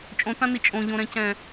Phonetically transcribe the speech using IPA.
t͡ʃʼõtãni t͡ʃʼõʎõɾɛ̃cɛ̃

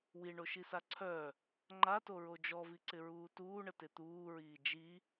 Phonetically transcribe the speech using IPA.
wiɳoʃisa ǀʰœ | ŋ͡ǃatoɹo d͡ʒɔviǀɪɹuː tuːɳətɪ t̪uːɹiː d͡ʒi

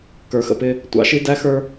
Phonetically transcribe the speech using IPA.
kə˞˨xə̰˨pɪ˦ | tʷɑ̰˨ʃi˦dæ˦xə˞˦

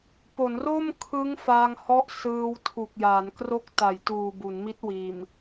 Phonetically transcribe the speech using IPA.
po˩˦nro˥˩mkʰɯ˦˥ŋ faː˧ŋhɔ˦˥ʔ sɯː˧wtʰu˨˩k̚ ja˩˦n kro˦˥k̚ ta˩˦jtuː˨˩ bu˩˦nmi˦˥t̚wiː˨˩m

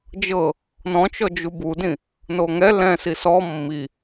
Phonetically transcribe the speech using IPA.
d͡ʒɤ | nɔ̃t͡ʃɔd͡ʒu budĩ | noŋɛ lɛ̃ sisɔ mːi

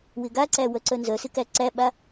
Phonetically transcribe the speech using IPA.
wɪɡaǀæ wœǀœnzœsɪ kæǀæɓa

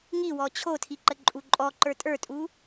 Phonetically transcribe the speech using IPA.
ŋiwɔ t͡ɕʰotʰiǃəǃʼu ǃʼɔǃə˞ tʼə˞tʼu

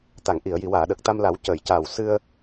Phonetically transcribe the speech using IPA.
t̪a˨˩˨ŋʔi˨˩˨ə̯ ji˨˩˨waː˨˩˨ ɗə˨˩k̚t̪a˧mla˨˩˦w cəː˨˩˨jcaː˨˩w sɨ˧ə̯

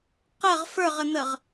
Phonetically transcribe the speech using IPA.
qəʁ fə˞ʁən̪əʁ

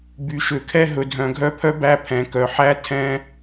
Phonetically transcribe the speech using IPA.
by˨ʃø˨kʰɛ˦ ɦɵ˨dʱœ̃˨ɡʱœ˦pʰœ˦ bæ˦pʰɛ̃˨kœ˨ ħæ˦tʰɛ̃˦

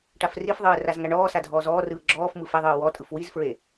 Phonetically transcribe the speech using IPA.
ʈafrifðˤɯː razŋaɳɔːsa dʱɔːzɔːrɯː ɡ͡ǁɔːf mɯfeðˤɯː wɔtʼɯf wizfɹe

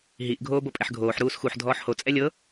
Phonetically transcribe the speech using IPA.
ɦiʔ ɡʱoːbopʼɛħɡʱoːħ ɾuːsxuħ dʱɔːħho t͡sʼɛlʲɤ

